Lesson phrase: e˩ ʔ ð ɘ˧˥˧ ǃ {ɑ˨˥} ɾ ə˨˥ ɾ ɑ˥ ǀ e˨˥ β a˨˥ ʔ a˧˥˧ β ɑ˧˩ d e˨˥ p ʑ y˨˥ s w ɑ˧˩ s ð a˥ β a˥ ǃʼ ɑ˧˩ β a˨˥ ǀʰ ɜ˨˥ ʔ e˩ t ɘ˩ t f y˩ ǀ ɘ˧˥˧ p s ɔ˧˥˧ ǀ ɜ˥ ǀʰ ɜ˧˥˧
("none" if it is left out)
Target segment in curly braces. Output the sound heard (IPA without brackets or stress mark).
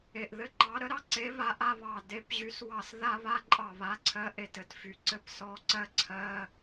ɑ˨˥